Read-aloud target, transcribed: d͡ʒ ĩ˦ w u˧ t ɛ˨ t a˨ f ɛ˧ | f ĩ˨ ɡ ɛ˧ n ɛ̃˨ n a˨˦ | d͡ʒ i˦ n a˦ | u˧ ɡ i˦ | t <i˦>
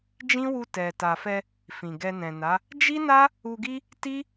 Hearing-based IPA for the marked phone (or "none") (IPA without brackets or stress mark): i˦